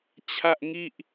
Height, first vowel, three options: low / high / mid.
low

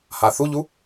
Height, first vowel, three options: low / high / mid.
low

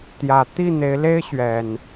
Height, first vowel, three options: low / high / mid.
low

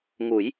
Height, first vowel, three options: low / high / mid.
high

